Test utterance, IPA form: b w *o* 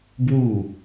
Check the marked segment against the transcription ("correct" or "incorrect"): incorrect